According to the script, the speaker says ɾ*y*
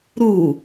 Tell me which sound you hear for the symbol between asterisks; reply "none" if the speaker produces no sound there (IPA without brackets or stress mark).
u